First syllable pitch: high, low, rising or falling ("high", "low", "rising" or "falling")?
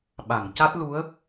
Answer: low